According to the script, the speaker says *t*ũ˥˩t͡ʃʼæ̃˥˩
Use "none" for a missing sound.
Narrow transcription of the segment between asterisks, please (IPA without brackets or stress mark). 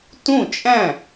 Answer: t